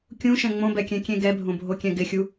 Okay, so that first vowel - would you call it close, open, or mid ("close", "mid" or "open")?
close